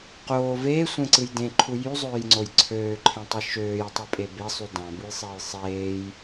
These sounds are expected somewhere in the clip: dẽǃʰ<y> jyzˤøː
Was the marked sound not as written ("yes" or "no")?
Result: yes